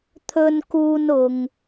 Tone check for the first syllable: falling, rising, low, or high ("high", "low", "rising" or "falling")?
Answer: high